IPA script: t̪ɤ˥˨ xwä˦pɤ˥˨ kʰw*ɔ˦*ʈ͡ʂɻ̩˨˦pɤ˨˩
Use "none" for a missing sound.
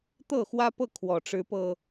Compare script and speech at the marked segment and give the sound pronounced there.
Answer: ɔ˨˩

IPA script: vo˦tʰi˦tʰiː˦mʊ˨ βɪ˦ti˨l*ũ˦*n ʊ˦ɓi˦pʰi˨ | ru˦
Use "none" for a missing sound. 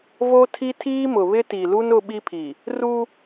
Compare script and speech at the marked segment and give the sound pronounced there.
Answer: u˦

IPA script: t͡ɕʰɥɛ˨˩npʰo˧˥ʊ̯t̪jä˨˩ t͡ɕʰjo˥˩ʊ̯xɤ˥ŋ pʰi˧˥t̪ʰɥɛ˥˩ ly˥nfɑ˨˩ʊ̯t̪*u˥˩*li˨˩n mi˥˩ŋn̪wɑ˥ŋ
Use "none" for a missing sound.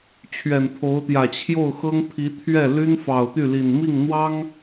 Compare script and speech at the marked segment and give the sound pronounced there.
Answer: y˥˩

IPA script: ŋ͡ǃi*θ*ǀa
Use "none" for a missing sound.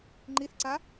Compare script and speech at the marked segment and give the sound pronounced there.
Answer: θ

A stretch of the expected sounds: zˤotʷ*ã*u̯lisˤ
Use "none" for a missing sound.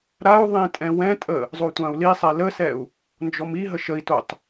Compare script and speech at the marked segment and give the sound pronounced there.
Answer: ã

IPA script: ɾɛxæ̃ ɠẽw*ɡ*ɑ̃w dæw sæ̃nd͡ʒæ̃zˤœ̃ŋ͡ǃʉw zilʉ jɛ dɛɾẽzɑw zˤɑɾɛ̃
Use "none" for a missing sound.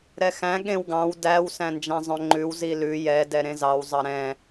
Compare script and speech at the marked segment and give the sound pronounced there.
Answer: ɡ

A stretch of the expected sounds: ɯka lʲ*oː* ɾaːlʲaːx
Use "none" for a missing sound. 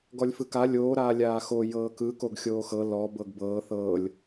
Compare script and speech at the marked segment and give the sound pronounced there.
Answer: oː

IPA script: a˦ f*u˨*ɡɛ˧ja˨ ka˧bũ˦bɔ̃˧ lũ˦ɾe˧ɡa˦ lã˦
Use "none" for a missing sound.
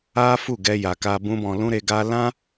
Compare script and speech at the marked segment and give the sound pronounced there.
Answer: u˦˨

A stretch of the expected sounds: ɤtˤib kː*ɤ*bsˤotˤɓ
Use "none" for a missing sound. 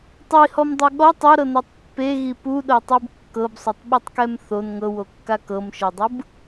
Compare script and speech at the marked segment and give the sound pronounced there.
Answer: ɤ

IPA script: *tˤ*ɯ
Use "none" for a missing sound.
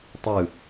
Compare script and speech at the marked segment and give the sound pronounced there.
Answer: tˤ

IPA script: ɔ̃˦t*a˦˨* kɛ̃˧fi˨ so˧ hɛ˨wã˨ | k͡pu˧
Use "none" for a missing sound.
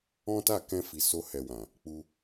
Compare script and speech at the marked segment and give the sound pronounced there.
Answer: a˦˨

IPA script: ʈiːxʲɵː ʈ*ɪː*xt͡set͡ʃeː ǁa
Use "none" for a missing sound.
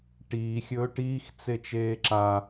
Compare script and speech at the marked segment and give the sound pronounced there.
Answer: iː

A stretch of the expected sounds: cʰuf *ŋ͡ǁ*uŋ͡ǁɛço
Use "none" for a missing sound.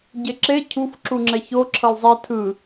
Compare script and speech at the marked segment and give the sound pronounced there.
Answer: ǁ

